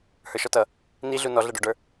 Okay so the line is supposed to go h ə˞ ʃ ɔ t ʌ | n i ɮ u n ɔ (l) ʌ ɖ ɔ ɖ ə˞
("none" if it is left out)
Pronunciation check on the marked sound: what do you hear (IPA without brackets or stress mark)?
ɮ